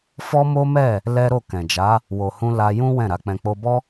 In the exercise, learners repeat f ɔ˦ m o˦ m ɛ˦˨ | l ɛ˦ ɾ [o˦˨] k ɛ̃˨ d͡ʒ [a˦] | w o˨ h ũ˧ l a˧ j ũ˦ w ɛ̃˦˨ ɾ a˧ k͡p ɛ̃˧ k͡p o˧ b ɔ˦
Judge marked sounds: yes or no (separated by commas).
yes, no